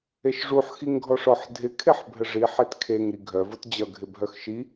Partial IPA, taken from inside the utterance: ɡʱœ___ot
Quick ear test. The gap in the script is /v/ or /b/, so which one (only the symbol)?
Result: v